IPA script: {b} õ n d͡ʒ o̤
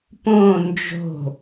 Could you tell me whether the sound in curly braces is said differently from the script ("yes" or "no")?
yes